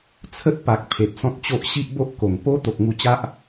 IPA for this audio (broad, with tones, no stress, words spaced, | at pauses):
t͡sʰə˦t̚pa˨k̚ pʰe˨p̚sɔ̃˦t̚t͡ɕo˦ʔ ɕi˦ʔbo˦ʔko˨˩ŋ po˦ t̪o˨k̚ŋu˧t͡ɕa˦ʔ